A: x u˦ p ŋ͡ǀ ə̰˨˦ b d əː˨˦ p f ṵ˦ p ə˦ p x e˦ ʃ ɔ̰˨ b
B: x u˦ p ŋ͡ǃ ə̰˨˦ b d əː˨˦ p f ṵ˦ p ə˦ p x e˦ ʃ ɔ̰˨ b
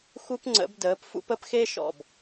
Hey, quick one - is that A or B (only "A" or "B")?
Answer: A